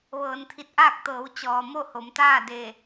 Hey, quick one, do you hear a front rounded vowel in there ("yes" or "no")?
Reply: no